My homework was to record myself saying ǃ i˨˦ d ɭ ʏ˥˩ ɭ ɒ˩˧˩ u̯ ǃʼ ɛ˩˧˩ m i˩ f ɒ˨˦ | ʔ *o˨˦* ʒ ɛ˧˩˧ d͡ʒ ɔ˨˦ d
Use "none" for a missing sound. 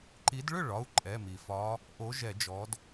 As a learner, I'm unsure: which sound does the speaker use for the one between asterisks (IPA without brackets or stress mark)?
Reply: o˨˦